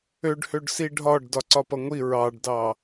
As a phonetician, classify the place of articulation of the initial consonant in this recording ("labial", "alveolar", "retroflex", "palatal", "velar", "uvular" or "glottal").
retroflex